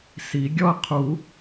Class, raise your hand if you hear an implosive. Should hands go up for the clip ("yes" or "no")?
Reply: no